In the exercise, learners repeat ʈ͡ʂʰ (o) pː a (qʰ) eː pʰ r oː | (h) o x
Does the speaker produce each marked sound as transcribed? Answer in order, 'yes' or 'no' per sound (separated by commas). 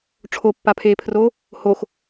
yes, no, yes